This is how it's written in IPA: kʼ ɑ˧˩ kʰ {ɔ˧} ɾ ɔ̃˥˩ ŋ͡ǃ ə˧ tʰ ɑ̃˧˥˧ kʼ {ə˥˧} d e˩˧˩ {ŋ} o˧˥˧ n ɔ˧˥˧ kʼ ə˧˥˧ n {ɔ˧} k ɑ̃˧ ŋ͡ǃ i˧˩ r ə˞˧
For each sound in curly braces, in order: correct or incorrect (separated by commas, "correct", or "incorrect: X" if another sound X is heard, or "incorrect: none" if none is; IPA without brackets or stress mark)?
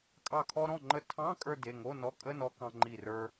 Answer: correct, incorrect: ə˞˥˧, correct, correct